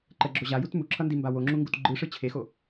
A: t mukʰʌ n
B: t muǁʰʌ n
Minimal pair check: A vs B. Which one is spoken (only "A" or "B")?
B